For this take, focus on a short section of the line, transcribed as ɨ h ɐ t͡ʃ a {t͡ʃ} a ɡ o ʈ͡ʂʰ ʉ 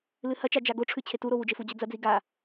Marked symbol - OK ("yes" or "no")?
no